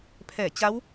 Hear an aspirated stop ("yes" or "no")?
yes